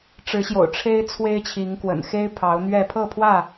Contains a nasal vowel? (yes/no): no